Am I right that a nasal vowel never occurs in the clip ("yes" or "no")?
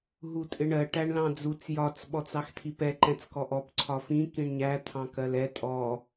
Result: no